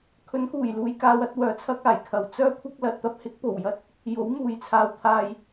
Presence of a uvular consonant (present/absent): absent